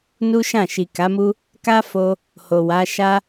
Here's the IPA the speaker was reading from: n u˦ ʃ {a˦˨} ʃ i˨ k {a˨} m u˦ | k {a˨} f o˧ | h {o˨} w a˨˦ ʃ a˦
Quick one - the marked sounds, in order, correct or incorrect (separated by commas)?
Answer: incorrect, incorrect, incorrect, correct